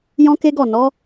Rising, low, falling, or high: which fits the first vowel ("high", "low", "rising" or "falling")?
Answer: high